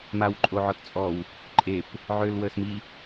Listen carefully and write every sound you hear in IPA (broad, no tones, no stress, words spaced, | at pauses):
mawǃʼoʕɔtt͡sʼɔw | ǃʼep | ʕølwəsmi